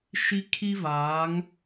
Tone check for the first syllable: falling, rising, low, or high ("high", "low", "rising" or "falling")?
high